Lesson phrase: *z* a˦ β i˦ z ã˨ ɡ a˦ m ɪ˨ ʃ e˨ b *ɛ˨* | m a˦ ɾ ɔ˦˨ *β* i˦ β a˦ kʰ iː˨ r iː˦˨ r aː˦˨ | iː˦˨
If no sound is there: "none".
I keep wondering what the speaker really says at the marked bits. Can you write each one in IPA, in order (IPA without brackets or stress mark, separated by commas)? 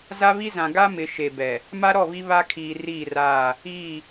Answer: z, ɛ˨, β